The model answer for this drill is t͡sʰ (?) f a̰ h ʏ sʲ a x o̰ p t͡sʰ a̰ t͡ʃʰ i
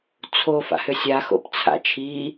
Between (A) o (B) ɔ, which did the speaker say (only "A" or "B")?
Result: A